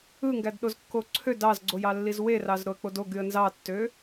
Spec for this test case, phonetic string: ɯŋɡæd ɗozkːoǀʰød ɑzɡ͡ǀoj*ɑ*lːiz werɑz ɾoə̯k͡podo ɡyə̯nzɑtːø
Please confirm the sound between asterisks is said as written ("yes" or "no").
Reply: yes